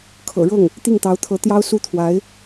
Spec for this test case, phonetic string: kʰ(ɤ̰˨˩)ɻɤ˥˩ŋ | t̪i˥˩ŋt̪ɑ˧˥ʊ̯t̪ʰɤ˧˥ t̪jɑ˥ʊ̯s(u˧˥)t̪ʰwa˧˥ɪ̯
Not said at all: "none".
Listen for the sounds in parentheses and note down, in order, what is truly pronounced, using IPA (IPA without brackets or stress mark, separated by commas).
ɤ̰˨˩, u˥